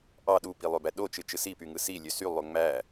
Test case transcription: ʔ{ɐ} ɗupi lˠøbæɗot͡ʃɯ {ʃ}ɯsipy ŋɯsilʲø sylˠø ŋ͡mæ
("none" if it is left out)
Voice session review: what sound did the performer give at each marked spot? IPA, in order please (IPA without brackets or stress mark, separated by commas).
ɑ, t͡ʃ